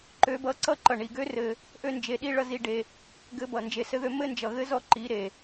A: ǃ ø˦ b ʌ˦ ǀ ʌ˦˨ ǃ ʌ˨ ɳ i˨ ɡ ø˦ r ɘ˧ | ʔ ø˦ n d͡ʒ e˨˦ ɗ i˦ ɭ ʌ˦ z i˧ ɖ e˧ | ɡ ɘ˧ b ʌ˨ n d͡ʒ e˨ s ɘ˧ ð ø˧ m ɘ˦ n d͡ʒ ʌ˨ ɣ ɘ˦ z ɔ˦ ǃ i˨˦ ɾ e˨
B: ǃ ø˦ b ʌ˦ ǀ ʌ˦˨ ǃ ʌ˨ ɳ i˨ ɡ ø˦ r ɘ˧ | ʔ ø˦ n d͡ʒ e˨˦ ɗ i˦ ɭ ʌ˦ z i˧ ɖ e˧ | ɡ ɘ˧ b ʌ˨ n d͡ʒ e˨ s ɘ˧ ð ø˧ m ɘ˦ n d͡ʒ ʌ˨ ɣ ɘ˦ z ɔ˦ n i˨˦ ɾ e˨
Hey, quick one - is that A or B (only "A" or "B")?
A